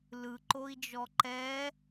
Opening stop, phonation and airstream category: click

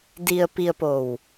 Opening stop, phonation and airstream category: plain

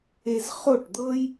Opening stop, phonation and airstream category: plain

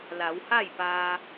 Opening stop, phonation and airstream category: plain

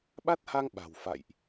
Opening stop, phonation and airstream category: implosive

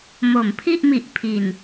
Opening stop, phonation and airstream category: aspirated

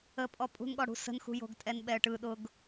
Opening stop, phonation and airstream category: ejective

